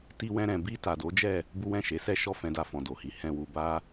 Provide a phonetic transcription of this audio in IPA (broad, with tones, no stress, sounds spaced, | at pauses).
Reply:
t i˧ w ɛ̃˧ ɾ ɛ̃˨ b i˧ t a˨ d o˨˦ d͡ʒ ɛ˦˨ | b u˦ w ɛ̃˦˨ ʃ e˨˦ s ɛ˦˨ ʃ ɔ˧ f ɛ̃˨ d a˨ f ɔ̃˨ d o˨ h i˨˦ h ɛ̃˧ w u˧ b a˦